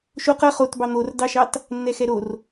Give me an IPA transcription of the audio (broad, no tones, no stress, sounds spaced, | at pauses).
ʃ o q ʌ χ o t b ɑ n̪ o r d ɑ ʃ ɑ t | nː ɛ x ɛ ɾ o r